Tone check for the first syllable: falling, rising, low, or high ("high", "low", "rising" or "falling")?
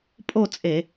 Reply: falling